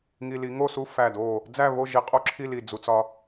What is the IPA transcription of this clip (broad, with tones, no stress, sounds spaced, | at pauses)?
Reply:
ŋ i˧ l i˩˥ ŋ o˥˨ s u˥˨ f æ˧˩ d o˧˩ | d͡z æ˥˨ β o˥˨ ʒ i˧ qʼ o˥˨ ǁʰ i˥˨ l i˧˩ d͡z u˧ t͡s ɒ˧